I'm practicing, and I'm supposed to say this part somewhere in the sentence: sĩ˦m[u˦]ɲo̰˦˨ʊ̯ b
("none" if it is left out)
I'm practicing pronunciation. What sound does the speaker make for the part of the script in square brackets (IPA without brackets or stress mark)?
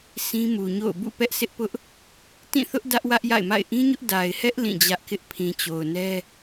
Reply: u˨